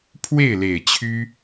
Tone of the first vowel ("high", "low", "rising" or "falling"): falling